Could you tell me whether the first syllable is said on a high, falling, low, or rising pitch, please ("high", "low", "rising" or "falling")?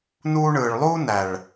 high